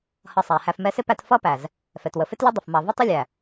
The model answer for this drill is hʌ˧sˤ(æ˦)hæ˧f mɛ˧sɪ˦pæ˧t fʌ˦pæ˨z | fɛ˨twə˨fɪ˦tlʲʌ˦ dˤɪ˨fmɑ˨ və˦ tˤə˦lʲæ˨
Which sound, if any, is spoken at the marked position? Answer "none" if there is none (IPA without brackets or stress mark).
æ˨